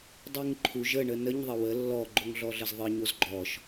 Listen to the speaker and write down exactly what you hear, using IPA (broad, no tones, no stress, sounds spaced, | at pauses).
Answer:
dˤ ɯ ŋ ǃʰ u ʒ ə ɳ ə n ə ɲ ðˤ ə w ə lː ɔ ɡ͡ǃ o ŋ ɮ ɔ ɮ ə z ðˤ ɯ ɲ o z ɡ͡ǃ ɔ ʃ